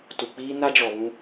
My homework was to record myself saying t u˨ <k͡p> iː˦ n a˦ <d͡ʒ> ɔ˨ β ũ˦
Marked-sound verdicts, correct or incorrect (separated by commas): correct, correct